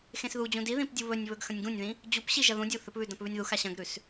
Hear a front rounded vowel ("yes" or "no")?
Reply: no